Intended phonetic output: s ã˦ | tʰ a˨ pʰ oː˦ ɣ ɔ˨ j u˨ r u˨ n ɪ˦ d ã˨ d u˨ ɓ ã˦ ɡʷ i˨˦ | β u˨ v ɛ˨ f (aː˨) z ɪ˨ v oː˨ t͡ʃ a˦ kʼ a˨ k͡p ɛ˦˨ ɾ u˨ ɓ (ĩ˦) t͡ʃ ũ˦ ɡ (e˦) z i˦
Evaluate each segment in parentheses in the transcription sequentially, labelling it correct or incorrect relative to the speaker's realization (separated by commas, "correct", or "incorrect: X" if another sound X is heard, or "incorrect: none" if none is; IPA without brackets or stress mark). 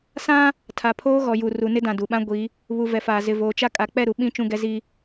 correct, correct, incorrect: ɛ˦